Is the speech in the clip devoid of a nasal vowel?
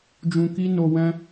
no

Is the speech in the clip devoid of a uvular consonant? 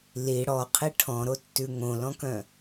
no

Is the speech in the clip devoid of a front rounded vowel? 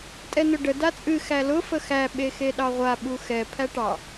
yes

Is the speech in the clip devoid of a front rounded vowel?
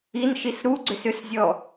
no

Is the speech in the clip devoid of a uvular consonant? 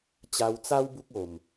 yes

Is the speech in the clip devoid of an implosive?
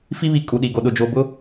no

